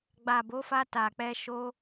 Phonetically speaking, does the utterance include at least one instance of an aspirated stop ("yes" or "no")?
no